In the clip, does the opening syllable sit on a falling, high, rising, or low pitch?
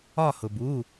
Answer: falling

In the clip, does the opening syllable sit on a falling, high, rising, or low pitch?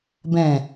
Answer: low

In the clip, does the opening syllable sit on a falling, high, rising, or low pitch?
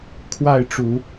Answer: falling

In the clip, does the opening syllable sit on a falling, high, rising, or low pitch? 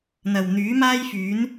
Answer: low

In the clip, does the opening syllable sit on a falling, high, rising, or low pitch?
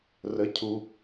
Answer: rising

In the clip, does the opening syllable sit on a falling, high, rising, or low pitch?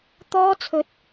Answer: high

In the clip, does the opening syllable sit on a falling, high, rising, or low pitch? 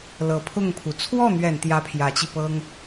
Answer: low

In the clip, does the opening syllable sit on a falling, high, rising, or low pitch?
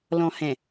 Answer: low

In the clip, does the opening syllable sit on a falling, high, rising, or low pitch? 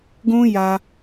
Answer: high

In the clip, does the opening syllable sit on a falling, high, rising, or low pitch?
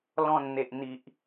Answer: low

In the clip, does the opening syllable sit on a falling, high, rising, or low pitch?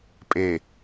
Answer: low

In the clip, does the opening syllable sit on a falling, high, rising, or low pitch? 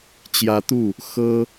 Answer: rising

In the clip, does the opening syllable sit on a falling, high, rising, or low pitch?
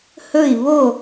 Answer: falling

